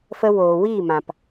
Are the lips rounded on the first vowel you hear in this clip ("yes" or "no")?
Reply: no